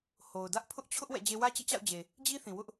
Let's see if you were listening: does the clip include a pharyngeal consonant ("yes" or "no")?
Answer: no